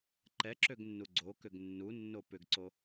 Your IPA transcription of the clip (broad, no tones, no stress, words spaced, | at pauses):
ǃɛǁøɡnːu ɡ͡ǀokʏɡ nːunːo pʏɡǀo